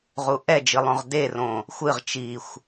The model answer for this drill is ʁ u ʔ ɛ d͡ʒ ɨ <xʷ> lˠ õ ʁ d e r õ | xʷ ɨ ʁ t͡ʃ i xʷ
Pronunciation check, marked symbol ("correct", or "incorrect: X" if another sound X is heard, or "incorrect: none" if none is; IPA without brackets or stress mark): incorrect: none